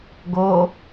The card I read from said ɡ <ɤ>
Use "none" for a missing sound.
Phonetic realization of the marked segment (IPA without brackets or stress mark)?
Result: o